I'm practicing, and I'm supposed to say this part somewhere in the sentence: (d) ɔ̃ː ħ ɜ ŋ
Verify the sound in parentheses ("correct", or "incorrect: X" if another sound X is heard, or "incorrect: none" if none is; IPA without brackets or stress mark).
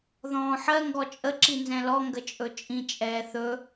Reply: incorrect: ð